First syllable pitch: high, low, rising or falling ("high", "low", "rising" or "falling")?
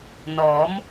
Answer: rising